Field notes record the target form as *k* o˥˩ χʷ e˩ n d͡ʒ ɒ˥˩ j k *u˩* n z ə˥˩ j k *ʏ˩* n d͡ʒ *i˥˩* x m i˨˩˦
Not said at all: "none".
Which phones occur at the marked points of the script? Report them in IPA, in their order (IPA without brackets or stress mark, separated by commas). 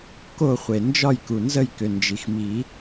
k, u˩, ʏ˩, i˩